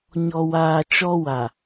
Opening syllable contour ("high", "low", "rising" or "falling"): low